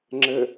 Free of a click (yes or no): no